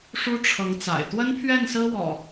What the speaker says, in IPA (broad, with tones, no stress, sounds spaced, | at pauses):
ʂ u˦ ʈ͡ʂʰ ɤ˨˦ ŋ t͡s a̰˨˩ ɪ̯ t̪ w ə˦ n pʰ ɥ ɛ˥˨ n s ɹ̩˦ w ɔ̰˨˩